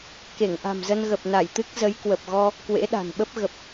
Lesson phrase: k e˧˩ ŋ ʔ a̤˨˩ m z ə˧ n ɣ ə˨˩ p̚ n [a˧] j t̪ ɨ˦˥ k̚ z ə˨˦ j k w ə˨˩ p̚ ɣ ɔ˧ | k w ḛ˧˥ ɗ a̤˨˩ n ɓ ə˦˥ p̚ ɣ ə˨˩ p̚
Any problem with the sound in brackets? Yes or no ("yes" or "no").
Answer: yes